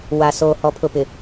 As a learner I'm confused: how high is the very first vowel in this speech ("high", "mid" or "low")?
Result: low